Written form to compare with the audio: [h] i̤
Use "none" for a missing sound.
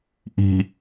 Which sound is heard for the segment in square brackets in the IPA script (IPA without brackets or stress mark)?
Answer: ʔ